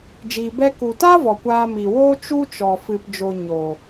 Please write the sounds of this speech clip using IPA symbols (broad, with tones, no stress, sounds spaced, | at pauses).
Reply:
d͡ʒ iː˨ b ɛ˧ k u˨ t aː˦ v ɔ˨ kʷ aː˧ m i˨ w oː˦ t͡ʃ u˦ t͡ʃ ɔ˨ f ɨ˨ p d͡ʒ o˨ ɲ oː˨